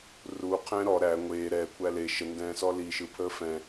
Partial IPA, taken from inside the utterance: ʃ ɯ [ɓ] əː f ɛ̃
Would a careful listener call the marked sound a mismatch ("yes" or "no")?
yes